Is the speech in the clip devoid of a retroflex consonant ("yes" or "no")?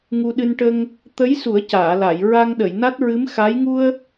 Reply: no